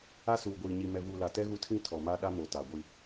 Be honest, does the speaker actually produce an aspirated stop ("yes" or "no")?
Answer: yes